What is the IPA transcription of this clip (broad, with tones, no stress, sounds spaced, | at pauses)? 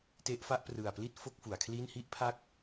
t e˦˥ ʔ f a˦˥ ʔ p r ɯ˨˩ a̯ p l i˥˩ t̚ f o˥˩ k̚ f u˩˦ a̯ kʰ l i˥˩ n h i˥˩ ʔ pʰ a˦˥ k̚